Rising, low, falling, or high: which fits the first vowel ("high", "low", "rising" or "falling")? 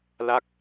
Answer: falling